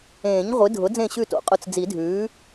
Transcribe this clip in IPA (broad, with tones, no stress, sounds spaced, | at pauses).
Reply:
ẽː˨˩˦ ɲ ʁʷ ɨ˩˥ dʱ ʊ˩˥ d͡z ẽ˥˨ ɕ ʉ˥˨ t o̰˨˩˦ qʼ ʊ˧ t͡s d͡z i˨˩˦ dʱ ʉː˩˥